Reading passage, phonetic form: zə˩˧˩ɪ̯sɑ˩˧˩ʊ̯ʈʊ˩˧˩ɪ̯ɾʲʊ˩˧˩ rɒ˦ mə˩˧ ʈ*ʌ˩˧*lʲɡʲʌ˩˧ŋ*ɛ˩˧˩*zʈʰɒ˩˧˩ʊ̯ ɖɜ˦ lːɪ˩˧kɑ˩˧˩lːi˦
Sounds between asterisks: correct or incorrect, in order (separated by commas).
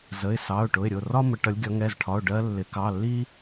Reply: correct, correct